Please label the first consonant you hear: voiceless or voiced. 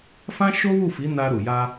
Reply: voiceless